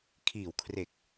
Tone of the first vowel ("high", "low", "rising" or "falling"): low